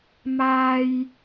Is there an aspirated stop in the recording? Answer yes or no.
no